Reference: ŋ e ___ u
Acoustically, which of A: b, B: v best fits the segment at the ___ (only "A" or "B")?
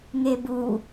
A